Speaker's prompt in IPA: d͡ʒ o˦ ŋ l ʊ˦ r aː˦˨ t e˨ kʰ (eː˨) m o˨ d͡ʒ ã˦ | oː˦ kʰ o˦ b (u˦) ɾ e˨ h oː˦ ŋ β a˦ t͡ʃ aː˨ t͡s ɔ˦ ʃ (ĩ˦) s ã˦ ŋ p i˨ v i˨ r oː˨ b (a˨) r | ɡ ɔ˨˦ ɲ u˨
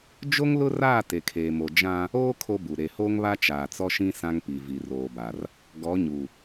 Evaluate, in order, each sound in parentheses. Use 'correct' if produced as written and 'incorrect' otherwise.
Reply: correct, incorrect, correct, correct

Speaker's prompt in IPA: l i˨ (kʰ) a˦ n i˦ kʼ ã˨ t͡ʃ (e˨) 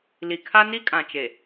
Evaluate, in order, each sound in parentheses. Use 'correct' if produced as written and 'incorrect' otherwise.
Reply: correct, correct

